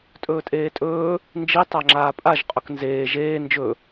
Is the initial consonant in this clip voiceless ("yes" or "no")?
yes